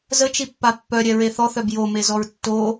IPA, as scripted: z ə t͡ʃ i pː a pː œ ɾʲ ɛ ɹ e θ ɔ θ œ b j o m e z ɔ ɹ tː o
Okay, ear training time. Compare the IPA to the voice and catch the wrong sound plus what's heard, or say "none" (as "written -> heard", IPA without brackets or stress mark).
none